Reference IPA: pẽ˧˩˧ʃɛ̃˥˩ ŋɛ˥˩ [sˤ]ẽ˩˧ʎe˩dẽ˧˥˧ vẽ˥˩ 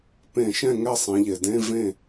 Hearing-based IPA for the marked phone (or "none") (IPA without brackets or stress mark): sˤ